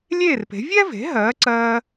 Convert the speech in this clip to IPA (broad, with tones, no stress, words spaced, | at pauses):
lʲeː˥˩rpe̤˩˥ vʲɛ˥ve̤˩˥ ɦɜː˩˥ǀɜː˧